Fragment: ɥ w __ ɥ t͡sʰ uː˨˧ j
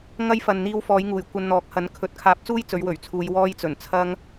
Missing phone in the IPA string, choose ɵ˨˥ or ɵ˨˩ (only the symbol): ɵ˨˩